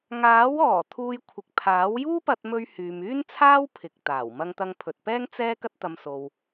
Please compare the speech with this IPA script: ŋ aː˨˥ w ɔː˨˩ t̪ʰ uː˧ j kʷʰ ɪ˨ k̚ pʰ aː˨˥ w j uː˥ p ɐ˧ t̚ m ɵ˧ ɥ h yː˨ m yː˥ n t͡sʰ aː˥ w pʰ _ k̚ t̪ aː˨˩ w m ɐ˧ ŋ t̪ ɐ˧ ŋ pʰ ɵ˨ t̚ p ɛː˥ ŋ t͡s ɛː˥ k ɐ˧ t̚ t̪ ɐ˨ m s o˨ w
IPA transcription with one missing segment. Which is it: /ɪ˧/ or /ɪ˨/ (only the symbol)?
ɪ˨